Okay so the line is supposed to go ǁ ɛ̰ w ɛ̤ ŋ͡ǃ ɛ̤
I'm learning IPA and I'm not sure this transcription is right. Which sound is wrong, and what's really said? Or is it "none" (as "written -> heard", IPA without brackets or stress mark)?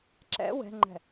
none